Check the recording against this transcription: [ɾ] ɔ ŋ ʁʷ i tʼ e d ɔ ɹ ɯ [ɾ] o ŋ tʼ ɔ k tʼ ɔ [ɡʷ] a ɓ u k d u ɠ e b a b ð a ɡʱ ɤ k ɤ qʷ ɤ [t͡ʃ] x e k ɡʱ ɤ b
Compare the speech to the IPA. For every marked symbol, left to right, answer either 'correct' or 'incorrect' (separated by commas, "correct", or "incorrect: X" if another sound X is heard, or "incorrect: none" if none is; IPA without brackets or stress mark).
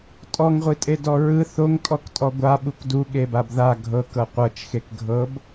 incorrect: tʼ, incorrect: θ, correct, correct